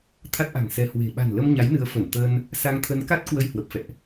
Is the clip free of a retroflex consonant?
yes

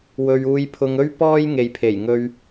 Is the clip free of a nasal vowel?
yes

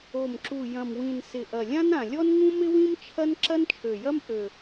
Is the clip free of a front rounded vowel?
no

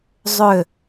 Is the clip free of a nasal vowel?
yes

